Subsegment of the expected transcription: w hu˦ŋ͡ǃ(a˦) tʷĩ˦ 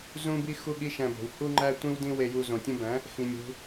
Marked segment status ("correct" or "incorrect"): incorrect